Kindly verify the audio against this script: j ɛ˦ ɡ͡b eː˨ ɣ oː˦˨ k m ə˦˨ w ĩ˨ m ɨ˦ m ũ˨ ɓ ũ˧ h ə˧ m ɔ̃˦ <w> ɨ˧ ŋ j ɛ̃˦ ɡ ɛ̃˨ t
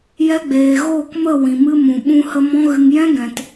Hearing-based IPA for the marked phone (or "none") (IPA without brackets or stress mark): ɣ